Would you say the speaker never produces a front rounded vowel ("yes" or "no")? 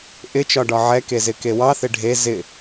yes